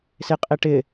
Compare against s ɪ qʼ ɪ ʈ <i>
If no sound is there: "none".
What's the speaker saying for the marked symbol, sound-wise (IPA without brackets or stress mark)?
ɪ